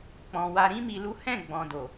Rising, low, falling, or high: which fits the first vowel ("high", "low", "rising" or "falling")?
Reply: low